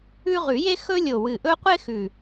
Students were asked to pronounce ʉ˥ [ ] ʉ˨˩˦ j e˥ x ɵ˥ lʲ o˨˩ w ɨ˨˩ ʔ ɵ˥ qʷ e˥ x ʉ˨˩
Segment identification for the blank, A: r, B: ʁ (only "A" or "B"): B